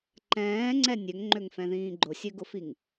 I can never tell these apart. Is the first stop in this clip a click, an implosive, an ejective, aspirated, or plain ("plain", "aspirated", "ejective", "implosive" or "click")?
click